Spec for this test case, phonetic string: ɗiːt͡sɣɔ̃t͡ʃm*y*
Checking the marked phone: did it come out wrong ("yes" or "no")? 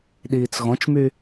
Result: no